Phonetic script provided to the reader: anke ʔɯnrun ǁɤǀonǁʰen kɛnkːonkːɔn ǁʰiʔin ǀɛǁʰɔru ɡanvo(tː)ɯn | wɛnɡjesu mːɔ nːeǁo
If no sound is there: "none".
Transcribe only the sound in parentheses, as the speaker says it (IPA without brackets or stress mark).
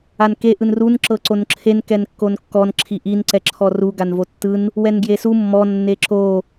tː